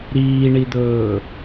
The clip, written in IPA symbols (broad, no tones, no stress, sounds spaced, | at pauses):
ɾ iː ɳ i d̪ ɵː